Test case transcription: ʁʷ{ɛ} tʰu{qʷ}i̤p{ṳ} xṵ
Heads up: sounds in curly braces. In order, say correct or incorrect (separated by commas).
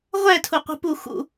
correct, correct, incorrect